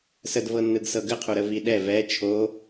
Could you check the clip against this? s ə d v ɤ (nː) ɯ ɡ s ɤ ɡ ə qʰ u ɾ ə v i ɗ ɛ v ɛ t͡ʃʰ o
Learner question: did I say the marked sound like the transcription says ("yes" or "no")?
yes